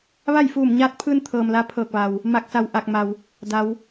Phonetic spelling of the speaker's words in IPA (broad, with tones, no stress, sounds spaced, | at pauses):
ʋ a˥˨ j f uː˧˩ m ɲ aː˧˥ t̚ pʰ ɯː˧ n t̪ʰ ɤː˩ m l aː˧˥ pʰ ɤː˧˩ k̚ ʋ a˩ w | m a˧˩ k̚ s a˧˩ w ʔ a˧˩ k̚ m a˩ w | d a˩˧ w